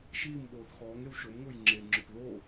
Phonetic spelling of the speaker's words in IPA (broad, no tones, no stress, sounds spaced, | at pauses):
ʃ iː m ɓ oː θ x ɔː ŋ e w ʃ o m ŋ ʊː j ŋ͡ǁ e ŋ͡ǁ ʊ p ð o